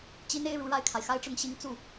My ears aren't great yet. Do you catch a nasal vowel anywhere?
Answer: no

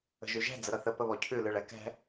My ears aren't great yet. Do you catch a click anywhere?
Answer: no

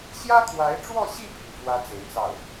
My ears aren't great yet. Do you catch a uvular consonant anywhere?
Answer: no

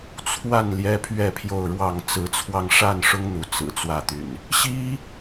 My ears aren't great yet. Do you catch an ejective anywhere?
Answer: no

